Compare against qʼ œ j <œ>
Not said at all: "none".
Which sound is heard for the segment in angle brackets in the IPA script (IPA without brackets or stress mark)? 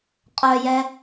ɛ